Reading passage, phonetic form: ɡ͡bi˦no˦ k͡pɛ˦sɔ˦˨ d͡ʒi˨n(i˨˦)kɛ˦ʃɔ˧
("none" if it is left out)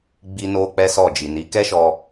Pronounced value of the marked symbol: i˨˦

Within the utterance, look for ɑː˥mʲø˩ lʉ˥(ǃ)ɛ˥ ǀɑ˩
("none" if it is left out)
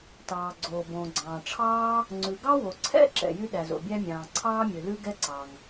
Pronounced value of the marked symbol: ɡ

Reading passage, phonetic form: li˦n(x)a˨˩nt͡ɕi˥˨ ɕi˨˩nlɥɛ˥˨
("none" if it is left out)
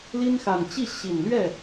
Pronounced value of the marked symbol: x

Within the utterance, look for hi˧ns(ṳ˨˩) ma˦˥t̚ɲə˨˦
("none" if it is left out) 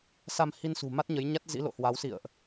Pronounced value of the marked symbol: ṳ˨˩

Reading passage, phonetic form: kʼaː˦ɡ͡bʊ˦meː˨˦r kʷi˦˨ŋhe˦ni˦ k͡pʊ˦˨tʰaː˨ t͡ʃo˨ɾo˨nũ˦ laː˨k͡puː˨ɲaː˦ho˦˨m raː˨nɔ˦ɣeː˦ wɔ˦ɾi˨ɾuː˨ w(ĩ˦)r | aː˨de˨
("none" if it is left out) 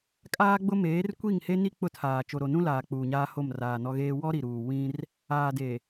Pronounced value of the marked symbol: ĩ˦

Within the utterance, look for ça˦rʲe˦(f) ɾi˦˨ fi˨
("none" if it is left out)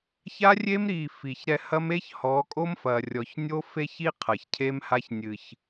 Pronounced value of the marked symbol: m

